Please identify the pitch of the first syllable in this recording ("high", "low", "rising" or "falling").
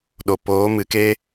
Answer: low